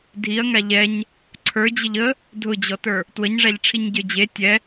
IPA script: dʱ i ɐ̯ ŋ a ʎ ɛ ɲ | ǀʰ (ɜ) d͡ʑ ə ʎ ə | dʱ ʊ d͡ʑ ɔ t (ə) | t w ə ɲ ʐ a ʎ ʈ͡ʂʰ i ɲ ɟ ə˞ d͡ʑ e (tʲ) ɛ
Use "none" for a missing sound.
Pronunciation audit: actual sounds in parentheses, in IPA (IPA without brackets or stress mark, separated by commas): ə˞, ə˞, tʲ